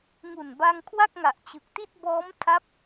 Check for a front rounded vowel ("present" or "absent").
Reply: absent